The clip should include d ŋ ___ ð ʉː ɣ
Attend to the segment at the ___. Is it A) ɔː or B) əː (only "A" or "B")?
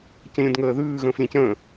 B